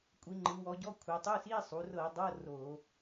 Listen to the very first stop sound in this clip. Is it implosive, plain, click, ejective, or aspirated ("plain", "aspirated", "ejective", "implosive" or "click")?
ejective